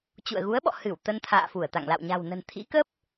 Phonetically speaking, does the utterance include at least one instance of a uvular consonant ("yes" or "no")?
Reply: no